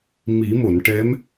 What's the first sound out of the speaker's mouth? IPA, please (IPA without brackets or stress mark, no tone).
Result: m